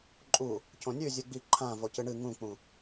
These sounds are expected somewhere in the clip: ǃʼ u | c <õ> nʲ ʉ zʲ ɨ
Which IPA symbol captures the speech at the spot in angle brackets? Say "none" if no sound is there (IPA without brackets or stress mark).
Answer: õ